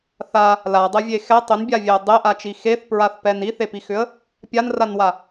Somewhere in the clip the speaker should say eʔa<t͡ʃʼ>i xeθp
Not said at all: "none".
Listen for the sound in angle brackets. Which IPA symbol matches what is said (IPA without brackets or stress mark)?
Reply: t͡ʃ